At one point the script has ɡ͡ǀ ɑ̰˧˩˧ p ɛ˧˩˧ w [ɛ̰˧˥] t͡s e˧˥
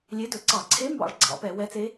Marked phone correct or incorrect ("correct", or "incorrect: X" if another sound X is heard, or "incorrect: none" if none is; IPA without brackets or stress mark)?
incorrect: ɛ˧˥